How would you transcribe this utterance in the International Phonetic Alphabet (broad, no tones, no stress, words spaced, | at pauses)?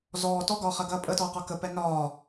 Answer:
zɔː tɔɡɒːχɐɡɐː pʼətɔːqɒ kəpɛ nɒː